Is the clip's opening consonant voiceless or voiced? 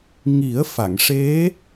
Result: voiced